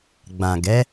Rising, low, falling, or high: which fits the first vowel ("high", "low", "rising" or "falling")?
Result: low